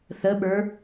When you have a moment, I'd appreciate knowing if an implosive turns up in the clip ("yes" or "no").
yes